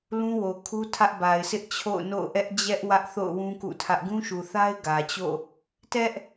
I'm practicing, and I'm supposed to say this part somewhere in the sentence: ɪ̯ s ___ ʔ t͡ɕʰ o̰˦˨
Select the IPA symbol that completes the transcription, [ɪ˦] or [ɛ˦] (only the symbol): ɪ˦